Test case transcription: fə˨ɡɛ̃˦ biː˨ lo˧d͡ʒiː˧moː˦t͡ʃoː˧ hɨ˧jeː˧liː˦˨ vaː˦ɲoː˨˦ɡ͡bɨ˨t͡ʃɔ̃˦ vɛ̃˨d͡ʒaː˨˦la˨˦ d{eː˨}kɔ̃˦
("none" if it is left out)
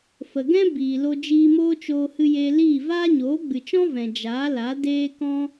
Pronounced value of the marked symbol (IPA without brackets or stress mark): eː˦